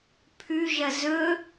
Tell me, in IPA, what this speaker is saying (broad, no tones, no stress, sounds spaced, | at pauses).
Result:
pʰ ʉ ʒ ɐ z ɵ